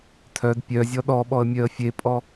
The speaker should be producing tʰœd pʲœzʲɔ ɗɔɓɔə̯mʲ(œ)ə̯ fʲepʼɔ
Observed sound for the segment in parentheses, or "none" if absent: œ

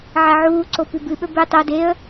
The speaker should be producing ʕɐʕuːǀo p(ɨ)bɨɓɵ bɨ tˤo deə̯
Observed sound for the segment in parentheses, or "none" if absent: ʉ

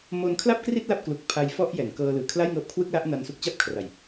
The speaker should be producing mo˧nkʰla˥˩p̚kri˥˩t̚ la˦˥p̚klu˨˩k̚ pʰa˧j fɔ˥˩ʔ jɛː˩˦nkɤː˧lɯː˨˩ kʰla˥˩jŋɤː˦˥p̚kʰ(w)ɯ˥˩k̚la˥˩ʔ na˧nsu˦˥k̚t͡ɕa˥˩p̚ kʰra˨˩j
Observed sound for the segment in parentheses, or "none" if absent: w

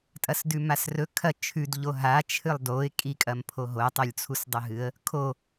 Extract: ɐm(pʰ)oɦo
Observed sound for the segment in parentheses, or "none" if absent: pʰ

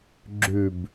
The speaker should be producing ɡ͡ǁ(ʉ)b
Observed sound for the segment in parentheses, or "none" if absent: ʉ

